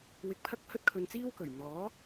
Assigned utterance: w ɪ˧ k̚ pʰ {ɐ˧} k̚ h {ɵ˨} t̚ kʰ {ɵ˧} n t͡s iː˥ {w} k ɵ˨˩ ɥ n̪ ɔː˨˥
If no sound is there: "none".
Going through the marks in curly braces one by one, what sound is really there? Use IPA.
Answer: ɐ˥, ɵ˥, ɵ˧, w

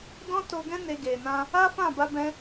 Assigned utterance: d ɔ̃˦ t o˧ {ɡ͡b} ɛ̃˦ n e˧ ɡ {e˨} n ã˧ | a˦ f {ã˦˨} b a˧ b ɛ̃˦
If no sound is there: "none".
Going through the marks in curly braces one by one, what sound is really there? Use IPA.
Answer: ɡ, e˨, ã˦˨

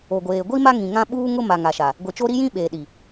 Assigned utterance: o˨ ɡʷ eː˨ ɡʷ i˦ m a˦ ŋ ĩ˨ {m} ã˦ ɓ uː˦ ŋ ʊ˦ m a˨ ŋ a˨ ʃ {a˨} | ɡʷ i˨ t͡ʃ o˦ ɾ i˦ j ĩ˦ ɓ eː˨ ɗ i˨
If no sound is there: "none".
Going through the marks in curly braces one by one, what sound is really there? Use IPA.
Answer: ŋ, a˨

